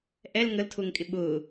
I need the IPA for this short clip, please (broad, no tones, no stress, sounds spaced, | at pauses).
ʔ ɛ l ŋ ə l tʰ ʊː ŋ kʼ ɪ ɓ ʊː